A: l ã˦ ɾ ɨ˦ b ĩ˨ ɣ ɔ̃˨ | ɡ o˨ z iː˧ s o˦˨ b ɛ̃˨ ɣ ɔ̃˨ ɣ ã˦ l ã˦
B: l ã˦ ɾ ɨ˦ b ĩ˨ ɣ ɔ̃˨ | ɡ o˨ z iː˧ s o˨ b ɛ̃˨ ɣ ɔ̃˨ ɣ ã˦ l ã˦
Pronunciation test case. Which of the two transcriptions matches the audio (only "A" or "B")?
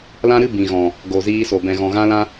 B